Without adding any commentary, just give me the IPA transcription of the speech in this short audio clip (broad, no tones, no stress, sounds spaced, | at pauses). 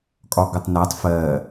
kʼ ɒ ɡ ʌ tˤ n æ tˤ f ɜ